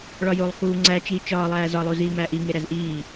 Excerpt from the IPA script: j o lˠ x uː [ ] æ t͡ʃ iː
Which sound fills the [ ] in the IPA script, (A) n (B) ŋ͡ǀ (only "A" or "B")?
B